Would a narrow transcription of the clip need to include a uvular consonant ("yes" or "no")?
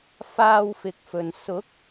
no